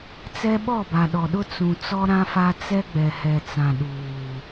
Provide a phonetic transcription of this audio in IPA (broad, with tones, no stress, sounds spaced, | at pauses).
t͡s ɛ˦ ɓ ɔ˦˨ b a˨ ɗ ɔ˨ ɗ ʊ˦ t͡s ũ˨ t͡s ɔ˦ ɾ ã˦ f a˦ t͡s ɛ˦ ɡ͡b ɛ˨ h ɛ˨ t͡s ã˨ ɗ uː˨